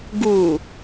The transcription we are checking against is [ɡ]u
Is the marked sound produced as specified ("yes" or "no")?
yes